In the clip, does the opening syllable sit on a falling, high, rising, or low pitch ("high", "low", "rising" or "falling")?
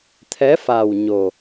rising